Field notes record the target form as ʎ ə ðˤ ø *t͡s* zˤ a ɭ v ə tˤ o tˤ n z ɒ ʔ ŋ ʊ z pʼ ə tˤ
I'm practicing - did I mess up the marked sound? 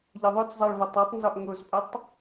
no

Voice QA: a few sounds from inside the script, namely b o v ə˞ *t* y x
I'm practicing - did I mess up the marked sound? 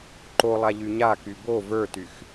no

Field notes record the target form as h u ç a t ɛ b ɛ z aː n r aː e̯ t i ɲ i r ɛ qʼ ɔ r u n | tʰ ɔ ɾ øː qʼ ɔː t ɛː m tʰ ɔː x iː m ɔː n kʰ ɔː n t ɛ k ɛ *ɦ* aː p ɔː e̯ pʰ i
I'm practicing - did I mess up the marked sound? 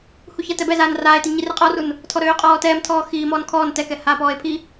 yes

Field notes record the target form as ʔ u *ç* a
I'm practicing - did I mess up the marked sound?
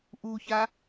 no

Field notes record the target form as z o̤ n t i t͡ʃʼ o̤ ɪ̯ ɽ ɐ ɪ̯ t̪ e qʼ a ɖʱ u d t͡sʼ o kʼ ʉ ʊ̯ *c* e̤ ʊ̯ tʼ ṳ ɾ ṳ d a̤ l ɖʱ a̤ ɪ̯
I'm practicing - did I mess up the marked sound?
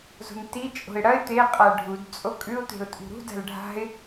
yes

